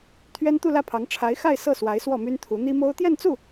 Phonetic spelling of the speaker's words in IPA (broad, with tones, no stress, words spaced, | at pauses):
t̪ʰɥɛ˥nt̪u˥˧lä˥˩pʰɑ˧˥ŋ ʈ͡ʂʰa˧˥ɪ̯xa˥˧ɪ̯ sɤ˥˩swa˧˥ɪ̯ swɔ˥˩my˥nt̪ʰu˧˥ n̪i˥mo˥ʊ̯ t̪jɛ˥˧nt͡su˥˩